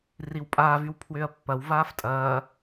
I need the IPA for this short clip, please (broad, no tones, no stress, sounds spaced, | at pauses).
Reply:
r i w pʼ aː v y w pʰ w ʏː ɐ̯ pː ɐ w v aː f tʼ ɐː